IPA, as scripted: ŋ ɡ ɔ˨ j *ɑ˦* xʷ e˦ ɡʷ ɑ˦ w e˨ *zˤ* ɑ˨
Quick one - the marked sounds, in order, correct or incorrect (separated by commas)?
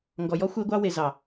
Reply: incorrect, incorrect